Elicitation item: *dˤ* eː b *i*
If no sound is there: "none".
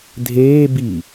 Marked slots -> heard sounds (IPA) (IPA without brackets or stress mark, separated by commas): dʱ, i